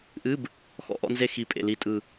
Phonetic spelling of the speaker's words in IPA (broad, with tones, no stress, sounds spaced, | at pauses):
ʔ ɨ˧˥˧ b | x ɔ̰˧ ʔ ɔ̰˧ n z e˧ x i˨˩ pʼ ḛ˨˩ l i˨˩ tʼ ɯ˨˩